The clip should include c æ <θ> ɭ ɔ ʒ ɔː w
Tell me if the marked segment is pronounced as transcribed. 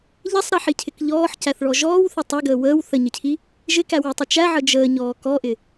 yes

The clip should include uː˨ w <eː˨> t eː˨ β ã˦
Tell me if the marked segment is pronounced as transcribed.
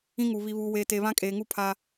yes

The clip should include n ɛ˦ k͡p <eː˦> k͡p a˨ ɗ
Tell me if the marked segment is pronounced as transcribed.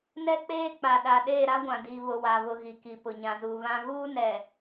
yes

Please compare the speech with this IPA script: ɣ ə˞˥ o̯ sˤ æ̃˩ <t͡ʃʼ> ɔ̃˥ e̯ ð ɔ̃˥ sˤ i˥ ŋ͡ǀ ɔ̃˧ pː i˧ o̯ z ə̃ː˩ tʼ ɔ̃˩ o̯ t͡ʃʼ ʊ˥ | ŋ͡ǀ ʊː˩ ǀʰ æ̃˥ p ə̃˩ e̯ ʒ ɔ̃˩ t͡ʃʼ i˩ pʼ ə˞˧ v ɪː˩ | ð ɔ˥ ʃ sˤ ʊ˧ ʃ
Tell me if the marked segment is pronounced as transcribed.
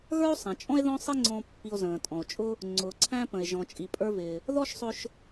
yes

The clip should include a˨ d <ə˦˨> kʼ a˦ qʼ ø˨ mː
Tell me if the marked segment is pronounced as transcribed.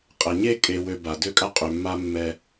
no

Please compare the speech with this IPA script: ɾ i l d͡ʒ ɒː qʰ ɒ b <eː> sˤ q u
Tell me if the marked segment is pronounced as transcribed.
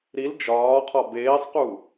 yes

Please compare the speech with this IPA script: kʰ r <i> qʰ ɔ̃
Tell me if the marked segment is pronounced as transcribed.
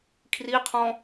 yes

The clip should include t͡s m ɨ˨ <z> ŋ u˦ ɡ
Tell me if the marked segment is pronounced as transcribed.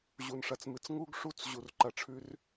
no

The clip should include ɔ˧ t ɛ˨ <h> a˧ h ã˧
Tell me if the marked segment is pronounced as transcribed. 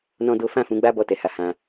yes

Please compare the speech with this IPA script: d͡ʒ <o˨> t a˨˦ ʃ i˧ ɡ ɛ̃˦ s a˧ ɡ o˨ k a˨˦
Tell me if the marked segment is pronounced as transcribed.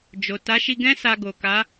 yes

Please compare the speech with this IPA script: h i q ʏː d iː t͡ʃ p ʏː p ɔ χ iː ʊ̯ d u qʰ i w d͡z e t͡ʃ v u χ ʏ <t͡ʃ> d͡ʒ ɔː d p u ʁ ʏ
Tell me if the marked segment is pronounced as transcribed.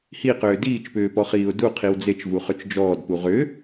yes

